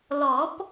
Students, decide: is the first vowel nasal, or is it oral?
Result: oral